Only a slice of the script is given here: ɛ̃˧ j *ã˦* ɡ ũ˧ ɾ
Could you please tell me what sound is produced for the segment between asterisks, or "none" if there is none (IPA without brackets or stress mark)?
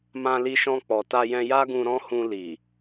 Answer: a˦